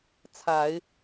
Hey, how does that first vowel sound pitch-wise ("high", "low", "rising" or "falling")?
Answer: low